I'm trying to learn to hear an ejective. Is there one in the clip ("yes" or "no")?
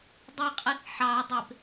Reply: yes